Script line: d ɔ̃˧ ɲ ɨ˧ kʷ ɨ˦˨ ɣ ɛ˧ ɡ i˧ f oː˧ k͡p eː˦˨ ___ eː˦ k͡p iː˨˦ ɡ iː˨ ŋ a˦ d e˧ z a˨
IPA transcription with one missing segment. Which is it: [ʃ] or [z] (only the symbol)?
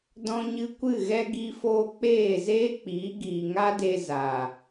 z